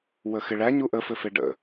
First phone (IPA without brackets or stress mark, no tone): w